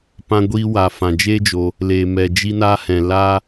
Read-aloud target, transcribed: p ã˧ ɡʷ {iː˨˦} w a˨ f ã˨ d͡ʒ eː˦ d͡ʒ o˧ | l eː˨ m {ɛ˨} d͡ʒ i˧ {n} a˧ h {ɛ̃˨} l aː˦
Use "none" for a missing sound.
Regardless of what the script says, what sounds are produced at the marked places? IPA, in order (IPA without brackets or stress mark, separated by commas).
iː˧, ɛ˨, n, ɛ̃˨